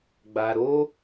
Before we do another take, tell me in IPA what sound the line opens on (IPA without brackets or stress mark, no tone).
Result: ɡ͡b